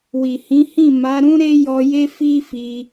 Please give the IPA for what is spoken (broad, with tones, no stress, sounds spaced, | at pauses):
w i˨ h ĩ˨˦ h ĩ˦˨ m a˨˦ ɾ ũ˦ ɾ e˦ j ɔ˧ j e˦ f i˦ f i˧